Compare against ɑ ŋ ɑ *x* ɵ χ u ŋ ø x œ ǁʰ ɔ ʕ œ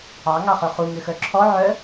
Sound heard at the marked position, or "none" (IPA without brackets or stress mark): χ